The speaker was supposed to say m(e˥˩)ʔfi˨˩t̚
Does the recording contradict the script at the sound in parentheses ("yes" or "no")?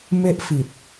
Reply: no